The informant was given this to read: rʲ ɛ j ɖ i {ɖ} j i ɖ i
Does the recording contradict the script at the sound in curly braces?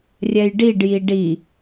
no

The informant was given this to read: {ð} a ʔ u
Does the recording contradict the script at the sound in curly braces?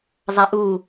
yes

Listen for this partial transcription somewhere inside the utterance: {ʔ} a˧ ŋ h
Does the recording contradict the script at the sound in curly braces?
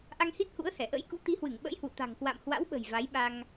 no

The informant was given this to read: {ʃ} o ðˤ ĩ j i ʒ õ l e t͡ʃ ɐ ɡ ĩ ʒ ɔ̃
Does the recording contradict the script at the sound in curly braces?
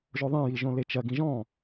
yes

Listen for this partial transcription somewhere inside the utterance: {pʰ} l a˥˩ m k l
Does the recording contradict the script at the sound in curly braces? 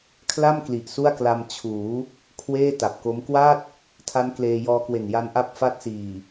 yes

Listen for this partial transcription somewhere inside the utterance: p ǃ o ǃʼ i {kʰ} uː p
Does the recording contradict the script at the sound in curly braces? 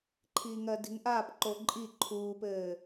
yes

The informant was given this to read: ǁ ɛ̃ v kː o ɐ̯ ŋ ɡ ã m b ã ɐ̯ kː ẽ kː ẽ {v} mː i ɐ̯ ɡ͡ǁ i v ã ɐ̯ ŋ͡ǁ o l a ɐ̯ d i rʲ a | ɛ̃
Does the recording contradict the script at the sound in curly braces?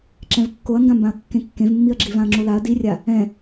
no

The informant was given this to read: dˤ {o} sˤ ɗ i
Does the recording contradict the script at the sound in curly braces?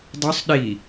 no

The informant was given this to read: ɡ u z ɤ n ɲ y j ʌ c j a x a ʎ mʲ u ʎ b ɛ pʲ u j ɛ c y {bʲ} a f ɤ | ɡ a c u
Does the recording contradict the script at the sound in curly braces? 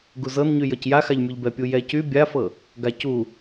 no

